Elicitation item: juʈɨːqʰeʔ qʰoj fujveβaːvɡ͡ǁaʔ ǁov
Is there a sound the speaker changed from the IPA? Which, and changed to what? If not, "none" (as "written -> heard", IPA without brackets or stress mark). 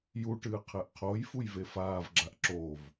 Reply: β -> f